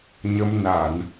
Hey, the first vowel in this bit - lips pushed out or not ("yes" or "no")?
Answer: no